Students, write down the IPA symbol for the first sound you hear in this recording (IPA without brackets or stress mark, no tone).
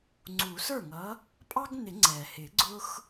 ŋ͡ǀ